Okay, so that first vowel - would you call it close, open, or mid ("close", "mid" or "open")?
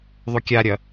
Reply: close